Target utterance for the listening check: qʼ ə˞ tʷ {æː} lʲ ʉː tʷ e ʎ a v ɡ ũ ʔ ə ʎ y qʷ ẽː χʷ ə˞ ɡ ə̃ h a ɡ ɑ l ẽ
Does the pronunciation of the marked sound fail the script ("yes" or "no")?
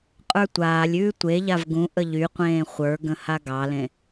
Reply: yes